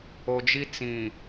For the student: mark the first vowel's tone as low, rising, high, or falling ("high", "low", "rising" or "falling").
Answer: low